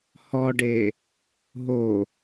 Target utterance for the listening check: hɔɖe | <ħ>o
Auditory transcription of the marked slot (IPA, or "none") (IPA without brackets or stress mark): ɦ